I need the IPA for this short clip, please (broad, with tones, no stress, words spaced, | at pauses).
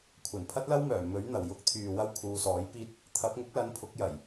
kʷʰɐ˨˩n pʰɐ˥t̚lɐ˥wmœː˨˩ mɵ˨˥ɥ n̪ɐ˨˩wjʊ˥k̚t̪ʰyː˨wɐ˥w kʰuː˨˧sɔː˨˥jpiː˥t̚ | t̪ʰɐ˨˥p̚ ŋʊ˨˥k̚lɐ˨˥n pʰʊ˨˥k̚jɐ˨˩j